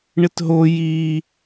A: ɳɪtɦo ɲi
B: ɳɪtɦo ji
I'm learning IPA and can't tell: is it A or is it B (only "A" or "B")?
B